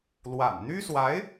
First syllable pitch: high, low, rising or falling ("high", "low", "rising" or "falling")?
low